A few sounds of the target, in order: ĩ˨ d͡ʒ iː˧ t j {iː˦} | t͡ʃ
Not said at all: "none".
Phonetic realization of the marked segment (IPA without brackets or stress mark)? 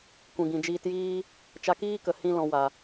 iː˦